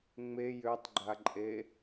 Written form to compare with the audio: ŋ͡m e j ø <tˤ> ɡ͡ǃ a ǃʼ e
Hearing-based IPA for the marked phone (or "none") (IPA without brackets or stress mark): tˤ